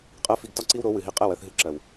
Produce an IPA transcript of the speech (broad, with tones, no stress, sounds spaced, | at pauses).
qʼ ɜ˦ f i˧ ɡ t ɒ˦ ǀ i˦ w ɾ o˨˦ w ɨ˨ ɦ i˧ qʼ ɛ˦˨ w ɜ˧ θ ɦ ɨ˧ ǁ ɜ˨ w